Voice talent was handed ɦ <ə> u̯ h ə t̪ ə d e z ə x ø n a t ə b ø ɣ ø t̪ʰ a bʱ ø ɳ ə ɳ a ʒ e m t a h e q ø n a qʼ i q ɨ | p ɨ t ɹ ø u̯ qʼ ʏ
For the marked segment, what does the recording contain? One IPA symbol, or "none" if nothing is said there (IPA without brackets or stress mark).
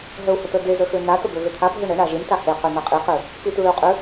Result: ə